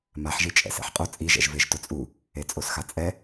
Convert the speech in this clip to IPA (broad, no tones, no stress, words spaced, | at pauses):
maħʒi t͡ʃʼɛ̰sɛ̰ħqʼo t͡sʼiʒɛ̰ʒ veʒtʊt͡sʼu | et͡sʼosxat͡sʼɛ